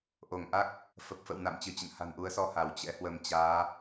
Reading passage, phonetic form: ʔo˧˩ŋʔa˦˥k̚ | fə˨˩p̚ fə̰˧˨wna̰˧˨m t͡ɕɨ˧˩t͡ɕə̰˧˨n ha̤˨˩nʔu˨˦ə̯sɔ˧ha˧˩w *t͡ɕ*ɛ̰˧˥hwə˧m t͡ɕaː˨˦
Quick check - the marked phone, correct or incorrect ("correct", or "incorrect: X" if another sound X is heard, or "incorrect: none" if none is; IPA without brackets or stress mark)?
correct